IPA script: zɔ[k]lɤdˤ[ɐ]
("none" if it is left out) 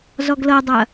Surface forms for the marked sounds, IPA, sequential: ɡ, ɐ

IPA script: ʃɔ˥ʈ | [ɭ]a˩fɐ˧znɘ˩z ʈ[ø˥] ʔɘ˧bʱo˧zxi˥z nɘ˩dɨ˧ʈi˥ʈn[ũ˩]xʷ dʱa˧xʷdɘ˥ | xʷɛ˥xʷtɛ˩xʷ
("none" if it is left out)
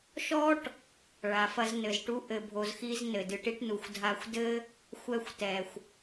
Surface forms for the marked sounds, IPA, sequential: ɭ, u˥, u˩

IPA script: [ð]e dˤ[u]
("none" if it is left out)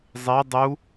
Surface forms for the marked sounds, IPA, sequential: zˤ, u

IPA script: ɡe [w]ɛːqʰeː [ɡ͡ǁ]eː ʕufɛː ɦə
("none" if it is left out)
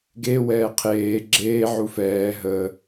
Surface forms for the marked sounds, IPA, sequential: w, ɡ͡ǁ

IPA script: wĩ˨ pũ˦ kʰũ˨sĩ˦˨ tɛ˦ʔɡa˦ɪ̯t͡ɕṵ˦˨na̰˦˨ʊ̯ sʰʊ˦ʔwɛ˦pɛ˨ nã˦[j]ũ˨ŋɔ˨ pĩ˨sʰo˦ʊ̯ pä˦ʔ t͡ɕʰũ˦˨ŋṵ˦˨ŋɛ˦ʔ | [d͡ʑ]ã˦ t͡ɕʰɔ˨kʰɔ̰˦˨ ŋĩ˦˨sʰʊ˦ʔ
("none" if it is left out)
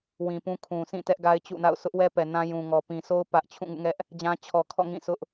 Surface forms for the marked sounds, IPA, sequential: j, d͡ʑ

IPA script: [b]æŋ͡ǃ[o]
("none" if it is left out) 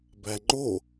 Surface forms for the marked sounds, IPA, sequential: b, o

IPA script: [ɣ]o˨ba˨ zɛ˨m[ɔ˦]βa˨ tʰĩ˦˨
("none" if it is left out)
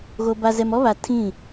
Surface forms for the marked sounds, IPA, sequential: ɣ, ɔ˦

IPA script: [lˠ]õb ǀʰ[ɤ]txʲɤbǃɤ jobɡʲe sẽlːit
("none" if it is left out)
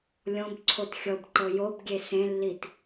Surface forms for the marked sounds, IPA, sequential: lʲ, o

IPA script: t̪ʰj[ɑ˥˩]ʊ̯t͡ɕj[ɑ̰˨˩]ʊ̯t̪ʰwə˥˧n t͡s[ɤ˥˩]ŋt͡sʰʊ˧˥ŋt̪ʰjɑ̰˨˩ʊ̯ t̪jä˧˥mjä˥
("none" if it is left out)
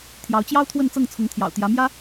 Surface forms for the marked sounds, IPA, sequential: ɑ˧˥, ɑ˥, ɤ˥˩

